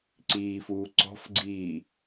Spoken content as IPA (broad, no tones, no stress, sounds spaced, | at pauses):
ǀ iː f uː ǀ ɔ̤ f ɡ͡ǀ iː